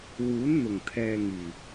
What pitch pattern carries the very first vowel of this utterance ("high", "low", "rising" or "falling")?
rising